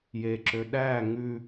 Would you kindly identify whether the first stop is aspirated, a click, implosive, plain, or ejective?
click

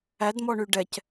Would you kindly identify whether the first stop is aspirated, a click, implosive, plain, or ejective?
plain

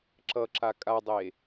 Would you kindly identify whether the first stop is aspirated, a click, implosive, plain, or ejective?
click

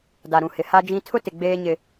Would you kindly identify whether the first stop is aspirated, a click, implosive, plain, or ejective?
plain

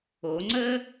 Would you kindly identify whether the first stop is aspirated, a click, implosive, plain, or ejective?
click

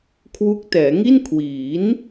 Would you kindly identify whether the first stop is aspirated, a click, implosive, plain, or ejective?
aspirated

